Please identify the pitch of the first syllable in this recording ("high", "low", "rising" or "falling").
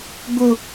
high